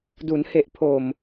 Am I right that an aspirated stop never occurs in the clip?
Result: no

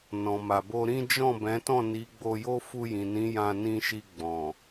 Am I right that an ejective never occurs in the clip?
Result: yes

